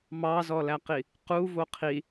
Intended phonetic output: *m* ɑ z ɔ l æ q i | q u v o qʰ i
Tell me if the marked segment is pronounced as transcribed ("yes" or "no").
yes